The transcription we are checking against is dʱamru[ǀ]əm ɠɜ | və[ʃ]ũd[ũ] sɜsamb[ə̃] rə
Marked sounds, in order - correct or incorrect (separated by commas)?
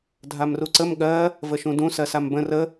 correct, correct, correct, correct